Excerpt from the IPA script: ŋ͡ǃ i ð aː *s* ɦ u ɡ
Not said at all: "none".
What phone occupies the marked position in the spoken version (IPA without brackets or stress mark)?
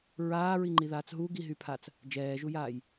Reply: t͡s